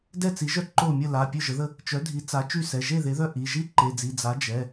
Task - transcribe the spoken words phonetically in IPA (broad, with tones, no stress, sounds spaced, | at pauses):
d ɛ˥˩ t͡s i˩˥ ʒ œ˥˩ ǃ o˥˩ mʲ ə˥˩ l a˩˧˩ pʲ ø˥˩ ʒ ə˩˥ ð ə˥˩ | t͡ʃ œ˩˥ dʱ i˩˥ t͡s a˩˥ t͡ʃ y˥˩ s ɛ˩˧˩ ʒ e˥˩ ð e˩˥ ð œ˥˩ ʔ i˩˧˩ ʒ i˥˩ ǃ e˩˧˩ d͡z i˩˧˩ d͡z a˩˥ d͡ʒ ɛ˩˧˩